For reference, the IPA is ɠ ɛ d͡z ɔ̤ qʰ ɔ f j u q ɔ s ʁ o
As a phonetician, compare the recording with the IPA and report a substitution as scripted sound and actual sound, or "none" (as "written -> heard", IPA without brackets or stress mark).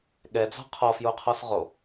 q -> qʰ